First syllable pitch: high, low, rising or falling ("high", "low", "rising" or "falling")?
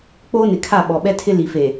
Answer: high